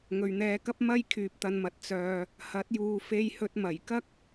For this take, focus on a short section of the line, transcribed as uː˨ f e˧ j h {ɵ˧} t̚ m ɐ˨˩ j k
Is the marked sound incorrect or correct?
correct